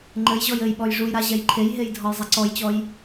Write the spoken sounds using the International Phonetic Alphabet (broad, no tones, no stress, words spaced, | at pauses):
ŋ͡ǃɘj ʑɔjɘjɓɔj ʐujɾa ʑɛjǃʰejɦej dʱɔjzˤɛǀɔjt͡ɕɔj